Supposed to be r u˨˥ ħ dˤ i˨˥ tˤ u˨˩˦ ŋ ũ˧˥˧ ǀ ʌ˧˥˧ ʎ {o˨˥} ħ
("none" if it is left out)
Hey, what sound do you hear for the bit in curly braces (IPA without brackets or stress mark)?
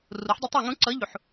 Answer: u˨˥